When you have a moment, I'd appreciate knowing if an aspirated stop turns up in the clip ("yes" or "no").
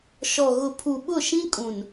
yes